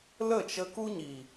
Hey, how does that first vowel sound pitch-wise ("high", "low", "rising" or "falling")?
falling